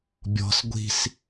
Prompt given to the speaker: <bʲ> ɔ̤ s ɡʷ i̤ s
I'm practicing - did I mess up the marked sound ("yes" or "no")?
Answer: no